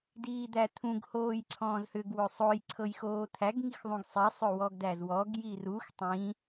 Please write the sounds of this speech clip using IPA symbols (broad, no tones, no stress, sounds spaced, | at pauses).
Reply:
d iː d̪ æ t̪ʰ ũ ɡ h oː j ǀʰ ɔ̃ː z h ʏ ɡ w ɵ sˤ o j ǀʰ ɤ j x oː t̪ʰ æ ɡ ŋ i x ðˤ ũ ɡ sˤ i sˤ ɵ w ɔ ɡ d æ z w ɔ ɡ j i r u x tˤ ĩ